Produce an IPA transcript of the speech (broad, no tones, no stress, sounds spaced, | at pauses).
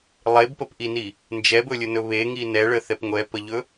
lˠ e b p ə p ʔ i n i | n d͡ʒ ɛ b ɵ lʲ ɵ n ɵ β e ŋ i n ɛ ɭ ə θ ɛ p ŋʷ ɛ p ə ʎ ɵ